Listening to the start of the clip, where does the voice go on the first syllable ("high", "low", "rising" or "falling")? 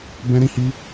high